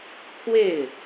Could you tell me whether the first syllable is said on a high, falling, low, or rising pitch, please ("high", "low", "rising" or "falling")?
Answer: falling